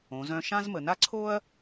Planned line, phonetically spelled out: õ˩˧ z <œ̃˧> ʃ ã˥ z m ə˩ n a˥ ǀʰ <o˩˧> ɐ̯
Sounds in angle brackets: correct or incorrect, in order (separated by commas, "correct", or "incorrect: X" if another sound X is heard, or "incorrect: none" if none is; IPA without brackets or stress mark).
correct, incorrect: o˥